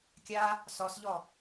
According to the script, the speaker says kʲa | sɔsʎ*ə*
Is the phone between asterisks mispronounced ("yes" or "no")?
yes